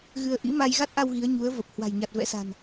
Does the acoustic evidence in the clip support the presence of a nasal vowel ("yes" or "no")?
no